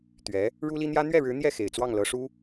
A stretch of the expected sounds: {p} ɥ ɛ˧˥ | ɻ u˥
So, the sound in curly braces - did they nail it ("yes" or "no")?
no